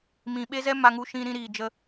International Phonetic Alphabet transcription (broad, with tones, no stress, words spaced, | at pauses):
mĩ˨ɓe˦zɛ˦ ma˧ŋu˧ʃĩ˧ ɾĩ˧ɾiː˨ d͡ʒə˧